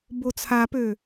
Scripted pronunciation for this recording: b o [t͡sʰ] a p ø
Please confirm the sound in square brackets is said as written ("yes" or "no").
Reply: yes